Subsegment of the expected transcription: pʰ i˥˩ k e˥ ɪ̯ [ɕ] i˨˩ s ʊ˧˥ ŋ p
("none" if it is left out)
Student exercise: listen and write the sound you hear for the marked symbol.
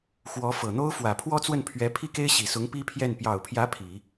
ɕ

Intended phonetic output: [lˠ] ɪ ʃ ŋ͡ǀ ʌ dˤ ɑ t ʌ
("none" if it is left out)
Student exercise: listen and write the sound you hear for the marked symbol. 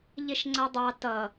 ʎ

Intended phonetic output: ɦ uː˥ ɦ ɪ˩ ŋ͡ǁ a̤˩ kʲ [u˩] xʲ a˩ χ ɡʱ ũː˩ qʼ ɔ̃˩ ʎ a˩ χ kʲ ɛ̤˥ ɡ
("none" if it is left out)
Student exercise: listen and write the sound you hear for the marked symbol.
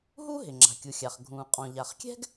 u˩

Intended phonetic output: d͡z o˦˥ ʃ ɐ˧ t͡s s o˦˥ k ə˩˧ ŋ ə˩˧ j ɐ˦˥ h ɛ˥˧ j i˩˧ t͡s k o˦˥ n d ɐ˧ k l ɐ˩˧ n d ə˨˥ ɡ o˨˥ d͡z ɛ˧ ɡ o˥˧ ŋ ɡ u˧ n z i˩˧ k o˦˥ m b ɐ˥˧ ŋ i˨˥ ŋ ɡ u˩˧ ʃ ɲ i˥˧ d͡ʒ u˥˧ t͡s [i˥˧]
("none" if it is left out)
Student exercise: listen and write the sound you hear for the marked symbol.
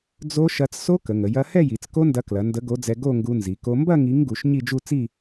i˥˧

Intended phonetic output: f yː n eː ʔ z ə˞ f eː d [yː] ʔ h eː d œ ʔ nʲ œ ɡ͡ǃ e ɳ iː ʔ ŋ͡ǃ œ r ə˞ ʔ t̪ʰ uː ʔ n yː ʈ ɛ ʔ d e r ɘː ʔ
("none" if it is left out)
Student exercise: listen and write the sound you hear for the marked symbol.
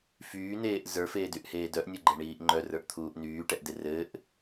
y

